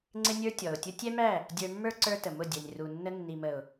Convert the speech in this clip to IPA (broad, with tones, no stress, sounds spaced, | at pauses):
ŋ͡ǀ ɪ˦ nʲ ə˞˦ tʲ ɔ˨ ʊ̯ tʲ ʊ˦ tʲ ɛ˦ m æ˦˨ | dʲ ə˞˧ mː ə˞˦ ǀ ə˞˦ t ə˨ m ʊ˦˨ dʲ ɛ˨ nʲ r u˨ nː ə˧ nː i˨ m ə˨ ʊ̯